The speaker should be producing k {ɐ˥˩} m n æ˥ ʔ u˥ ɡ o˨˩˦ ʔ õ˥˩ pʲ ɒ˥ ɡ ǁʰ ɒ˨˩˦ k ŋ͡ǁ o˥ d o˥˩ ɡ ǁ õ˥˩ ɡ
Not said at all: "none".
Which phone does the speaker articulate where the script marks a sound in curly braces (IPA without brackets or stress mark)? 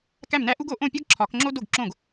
æ˥˩